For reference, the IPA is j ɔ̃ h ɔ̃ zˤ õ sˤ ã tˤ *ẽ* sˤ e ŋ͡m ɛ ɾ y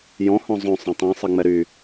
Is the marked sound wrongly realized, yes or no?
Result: no